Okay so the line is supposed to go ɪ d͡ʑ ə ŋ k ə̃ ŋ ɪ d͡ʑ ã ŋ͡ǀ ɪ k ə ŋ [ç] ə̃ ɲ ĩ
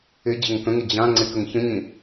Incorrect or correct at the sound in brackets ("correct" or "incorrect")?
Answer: correct